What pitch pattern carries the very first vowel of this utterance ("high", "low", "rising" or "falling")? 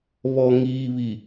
low